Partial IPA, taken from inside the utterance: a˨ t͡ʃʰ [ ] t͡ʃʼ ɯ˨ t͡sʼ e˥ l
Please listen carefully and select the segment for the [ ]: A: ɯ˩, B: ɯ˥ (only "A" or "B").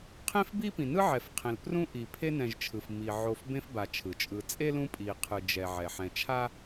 A